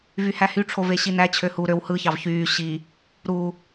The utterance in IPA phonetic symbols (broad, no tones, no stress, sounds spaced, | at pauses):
v y h æ h y ʈ͡ʂʰ o v e ɕ i n æ t͡ɕʰ ø h u ɾ ø w h ɯ ç ɑ v ç yː ɕ i | ɾ u